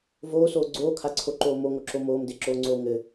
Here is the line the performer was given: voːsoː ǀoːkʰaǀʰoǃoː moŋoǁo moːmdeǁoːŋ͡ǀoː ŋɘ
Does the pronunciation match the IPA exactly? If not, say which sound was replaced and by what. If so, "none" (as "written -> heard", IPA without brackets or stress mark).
ǀ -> ɡ͡ǀ